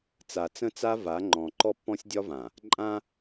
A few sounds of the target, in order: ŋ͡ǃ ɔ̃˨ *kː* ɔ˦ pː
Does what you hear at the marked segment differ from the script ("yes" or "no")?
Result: yes